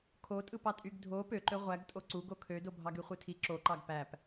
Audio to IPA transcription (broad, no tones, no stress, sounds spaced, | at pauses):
kʰ o tʼ ɯ p ɑ tʼ y ɡ dʱ o p ø ǃ ø ʁʷ æ ɡ tʼ o ǀ u ɡ o kʰ ø d o bʱ ɑ ɡ y χʷ ɯ tʰ i ǁ o ǃ ɑ ɡ p æ p